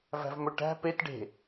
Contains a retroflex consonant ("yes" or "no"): yes